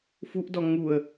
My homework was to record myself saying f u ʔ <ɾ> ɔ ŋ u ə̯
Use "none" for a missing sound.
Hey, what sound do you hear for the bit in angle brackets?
d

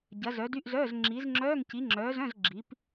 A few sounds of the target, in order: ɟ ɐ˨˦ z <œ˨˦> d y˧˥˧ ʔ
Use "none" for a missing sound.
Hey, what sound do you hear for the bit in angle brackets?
œ˨˦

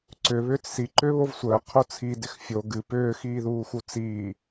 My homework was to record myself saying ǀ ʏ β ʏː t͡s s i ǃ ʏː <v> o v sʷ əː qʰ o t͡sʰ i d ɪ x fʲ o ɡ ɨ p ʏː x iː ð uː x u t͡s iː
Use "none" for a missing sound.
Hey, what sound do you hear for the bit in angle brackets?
β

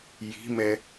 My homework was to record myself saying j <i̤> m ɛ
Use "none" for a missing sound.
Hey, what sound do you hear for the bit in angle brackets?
i̤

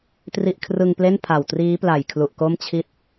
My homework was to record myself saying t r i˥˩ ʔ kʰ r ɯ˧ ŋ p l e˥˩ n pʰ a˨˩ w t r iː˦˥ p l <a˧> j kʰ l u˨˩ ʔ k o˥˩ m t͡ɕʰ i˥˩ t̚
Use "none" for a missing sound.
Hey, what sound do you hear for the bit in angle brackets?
a˨˩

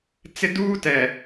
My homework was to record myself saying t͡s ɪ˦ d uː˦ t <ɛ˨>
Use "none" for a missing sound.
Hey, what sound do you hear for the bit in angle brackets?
ɛ˨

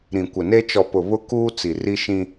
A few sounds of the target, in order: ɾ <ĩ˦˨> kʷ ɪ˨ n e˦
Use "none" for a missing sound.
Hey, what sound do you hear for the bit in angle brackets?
ĩ˨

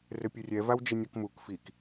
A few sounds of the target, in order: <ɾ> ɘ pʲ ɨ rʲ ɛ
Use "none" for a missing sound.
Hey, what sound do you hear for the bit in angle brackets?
r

